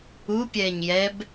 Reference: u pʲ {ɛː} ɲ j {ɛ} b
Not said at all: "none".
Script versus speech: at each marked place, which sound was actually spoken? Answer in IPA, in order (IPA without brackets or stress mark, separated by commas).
ɛː, ɛ